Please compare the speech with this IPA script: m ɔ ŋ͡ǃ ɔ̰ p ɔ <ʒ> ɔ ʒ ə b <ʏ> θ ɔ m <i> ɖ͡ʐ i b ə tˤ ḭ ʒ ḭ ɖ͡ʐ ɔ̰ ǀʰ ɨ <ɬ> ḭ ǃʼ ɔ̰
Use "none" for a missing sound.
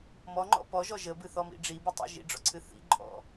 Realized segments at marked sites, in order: ʒ, ɨ, ḭ, θ

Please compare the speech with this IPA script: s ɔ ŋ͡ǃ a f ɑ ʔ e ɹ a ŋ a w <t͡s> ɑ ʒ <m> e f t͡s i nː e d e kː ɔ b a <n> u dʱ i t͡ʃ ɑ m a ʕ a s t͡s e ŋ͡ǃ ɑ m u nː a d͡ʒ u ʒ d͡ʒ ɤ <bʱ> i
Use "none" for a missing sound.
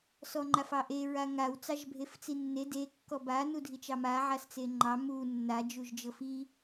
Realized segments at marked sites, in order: t͡s, bʱ, n, f

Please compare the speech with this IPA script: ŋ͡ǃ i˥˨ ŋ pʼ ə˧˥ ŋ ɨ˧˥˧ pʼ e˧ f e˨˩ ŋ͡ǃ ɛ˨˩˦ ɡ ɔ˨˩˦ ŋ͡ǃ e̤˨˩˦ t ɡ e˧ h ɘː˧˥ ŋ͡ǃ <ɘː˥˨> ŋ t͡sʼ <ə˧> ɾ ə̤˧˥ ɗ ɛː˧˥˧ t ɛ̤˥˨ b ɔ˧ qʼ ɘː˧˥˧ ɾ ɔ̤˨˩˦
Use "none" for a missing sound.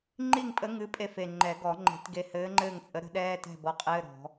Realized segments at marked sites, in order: ɘː˥˨, ə˧˥

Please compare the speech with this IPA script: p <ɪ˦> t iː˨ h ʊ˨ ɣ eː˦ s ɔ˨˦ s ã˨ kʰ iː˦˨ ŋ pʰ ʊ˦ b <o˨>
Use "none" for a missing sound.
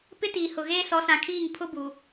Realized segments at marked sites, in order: ɪ˦, u˨

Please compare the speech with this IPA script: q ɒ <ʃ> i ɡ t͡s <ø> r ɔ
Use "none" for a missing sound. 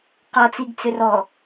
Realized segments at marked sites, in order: t͡s, ø

